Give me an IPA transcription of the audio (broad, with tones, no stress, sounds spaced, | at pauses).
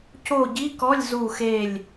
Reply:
c o˦˨ ɟ i˧˥˧ k ɔ˧˥˧ lʲ z u˦˨ x e˦˨ lʲ